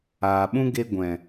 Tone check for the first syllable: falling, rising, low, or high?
low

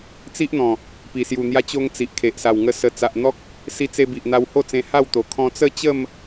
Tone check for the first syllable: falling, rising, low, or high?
high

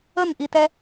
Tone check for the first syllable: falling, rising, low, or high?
falling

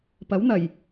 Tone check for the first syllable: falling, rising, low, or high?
rising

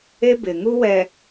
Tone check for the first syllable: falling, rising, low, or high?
high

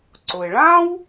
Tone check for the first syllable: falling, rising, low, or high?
low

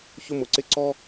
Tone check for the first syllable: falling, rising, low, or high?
falling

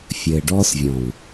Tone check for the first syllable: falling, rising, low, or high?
low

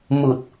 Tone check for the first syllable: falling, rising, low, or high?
low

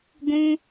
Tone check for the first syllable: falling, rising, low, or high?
high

